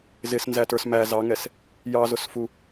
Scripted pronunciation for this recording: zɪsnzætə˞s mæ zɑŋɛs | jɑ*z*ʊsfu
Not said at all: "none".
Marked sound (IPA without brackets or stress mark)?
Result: z